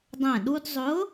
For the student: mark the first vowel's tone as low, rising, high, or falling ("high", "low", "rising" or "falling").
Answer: falling